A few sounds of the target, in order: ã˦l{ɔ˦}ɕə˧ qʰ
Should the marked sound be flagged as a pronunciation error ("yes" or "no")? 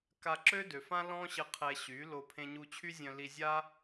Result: yes